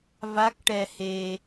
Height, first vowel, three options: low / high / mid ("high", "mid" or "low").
low